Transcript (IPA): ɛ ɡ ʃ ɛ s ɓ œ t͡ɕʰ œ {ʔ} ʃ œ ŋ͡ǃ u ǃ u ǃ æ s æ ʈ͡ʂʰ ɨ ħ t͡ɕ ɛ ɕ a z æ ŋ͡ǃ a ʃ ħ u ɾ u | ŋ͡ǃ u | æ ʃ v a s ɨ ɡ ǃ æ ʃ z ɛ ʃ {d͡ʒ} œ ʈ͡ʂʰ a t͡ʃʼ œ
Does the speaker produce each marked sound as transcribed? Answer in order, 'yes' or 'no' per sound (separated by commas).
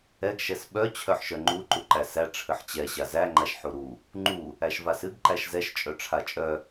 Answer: no, no